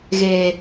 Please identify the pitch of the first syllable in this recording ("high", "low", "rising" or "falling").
low